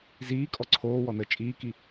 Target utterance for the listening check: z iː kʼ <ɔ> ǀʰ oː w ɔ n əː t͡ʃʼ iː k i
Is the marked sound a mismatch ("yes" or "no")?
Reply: no